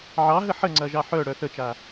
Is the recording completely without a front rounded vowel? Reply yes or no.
no